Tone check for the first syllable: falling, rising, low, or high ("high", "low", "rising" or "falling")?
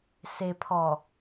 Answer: low